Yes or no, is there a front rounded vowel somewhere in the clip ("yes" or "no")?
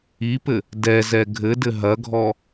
no